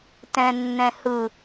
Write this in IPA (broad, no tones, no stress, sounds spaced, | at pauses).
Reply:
t ɛ̃ nː ɛ̃ h ɯ